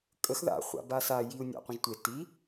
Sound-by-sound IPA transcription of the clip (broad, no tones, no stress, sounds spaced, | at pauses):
kʼ ə x ð a̰ χʷ a̰ b a s a j i u̯ nʲ a̰ qʷ ə̃ ʒ tʷ e t i